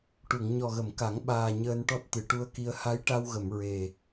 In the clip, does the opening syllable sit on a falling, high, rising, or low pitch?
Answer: low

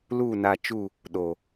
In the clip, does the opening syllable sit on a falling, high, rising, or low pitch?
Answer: falling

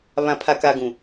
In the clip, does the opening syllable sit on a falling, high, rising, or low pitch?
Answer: low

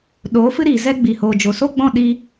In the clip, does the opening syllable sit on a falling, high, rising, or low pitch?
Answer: rising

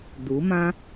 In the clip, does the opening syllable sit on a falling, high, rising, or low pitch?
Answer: rising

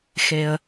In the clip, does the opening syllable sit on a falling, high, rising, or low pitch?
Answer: low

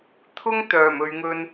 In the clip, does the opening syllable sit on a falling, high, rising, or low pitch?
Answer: high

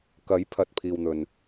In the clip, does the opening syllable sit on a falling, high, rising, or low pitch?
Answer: rising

